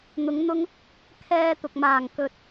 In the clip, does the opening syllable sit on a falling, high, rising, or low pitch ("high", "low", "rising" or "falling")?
rising